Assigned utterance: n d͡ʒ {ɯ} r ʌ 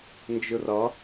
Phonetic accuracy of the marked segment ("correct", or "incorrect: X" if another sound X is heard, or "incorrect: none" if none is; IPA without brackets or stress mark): correct